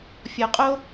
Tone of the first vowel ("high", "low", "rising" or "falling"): low